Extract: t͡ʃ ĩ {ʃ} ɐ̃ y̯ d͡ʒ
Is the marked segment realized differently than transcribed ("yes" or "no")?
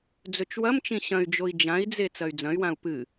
yes